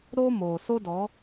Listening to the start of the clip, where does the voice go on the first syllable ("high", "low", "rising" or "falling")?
high